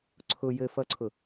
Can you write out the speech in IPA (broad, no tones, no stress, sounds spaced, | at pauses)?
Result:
ǀʰ ʊ j ɘ f ʌ ǀʰ ʊ